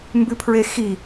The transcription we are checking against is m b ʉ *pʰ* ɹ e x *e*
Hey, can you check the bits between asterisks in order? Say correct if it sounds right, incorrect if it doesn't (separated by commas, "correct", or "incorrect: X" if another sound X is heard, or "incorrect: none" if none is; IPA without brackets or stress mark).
correct, incorrect: i